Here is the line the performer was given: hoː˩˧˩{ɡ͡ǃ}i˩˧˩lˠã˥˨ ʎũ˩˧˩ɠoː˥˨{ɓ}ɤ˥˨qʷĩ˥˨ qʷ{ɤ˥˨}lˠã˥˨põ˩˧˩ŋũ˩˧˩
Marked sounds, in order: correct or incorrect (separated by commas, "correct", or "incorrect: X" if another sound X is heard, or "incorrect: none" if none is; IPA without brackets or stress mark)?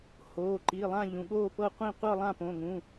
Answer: incorrect: ǃ, incorrect: p, correct